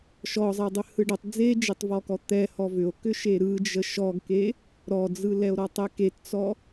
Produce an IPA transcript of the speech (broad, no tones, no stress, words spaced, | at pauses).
ʃɔzˤedˤʏ hɯɖətˤ d͡zed͡ʒetˤvɔkɔ t̪ɛ hɔvʏo̯ kʏʃeɾɯ d͡ʒəʃɔɡke | ɾɔd͡zɯlɛo̯ ɾɔtˤɛkett͡sɔ